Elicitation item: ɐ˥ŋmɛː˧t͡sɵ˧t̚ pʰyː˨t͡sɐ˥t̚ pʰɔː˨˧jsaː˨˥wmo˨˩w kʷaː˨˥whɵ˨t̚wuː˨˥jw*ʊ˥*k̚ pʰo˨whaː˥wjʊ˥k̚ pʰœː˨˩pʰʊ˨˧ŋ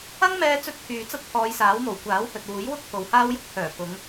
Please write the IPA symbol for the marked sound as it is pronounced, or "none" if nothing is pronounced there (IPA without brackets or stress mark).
ʊ˥